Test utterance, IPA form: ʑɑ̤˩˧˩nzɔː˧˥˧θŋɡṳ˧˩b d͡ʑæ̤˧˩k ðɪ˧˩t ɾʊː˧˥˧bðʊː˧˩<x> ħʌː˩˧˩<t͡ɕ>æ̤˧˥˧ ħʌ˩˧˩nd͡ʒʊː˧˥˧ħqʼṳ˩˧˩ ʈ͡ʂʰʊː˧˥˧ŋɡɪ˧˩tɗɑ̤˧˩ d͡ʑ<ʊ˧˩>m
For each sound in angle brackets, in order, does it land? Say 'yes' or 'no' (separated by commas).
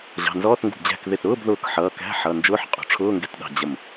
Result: no, no, no